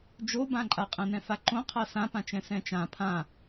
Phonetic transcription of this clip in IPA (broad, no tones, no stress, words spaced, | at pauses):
d͡ʒobãǃʼa qʼɛ̃nɛ̃faǃõ qʰasãpãt͡ʃɛ̃ sɛ̃t͡ʃã pʰã